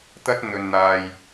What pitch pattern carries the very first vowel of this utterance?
high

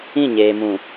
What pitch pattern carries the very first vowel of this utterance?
falling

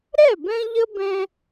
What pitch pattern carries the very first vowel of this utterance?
falling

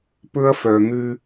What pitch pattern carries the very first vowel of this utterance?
high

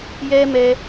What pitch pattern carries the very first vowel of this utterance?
high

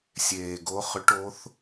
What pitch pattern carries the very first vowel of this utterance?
low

